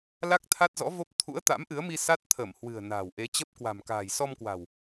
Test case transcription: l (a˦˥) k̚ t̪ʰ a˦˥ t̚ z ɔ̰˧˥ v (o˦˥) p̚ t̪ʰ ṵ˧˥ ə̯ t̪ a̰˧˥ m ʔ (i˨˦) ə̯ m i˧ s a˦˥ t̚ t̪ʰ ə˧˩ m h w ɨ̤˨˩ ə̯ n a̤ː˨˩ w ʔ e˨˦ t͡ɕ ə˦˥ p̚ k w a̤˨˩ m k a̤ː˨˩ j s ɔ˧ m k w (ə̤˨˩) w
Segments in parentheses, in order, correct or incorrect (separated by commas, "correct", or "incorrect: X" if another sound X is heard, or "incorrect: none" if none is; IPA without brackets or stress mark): correct, correct, incorrect: ɨ˨˦, incorrect: a̤˨˩